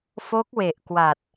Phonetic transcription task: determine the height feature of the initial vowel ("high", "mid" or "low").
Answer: mid